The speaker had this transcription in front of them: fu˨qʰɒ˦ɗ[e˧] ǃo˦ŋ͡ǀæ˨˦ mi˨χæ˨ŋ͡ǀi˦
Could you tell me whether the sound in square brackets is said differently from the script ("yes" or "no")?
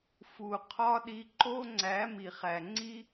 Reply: yes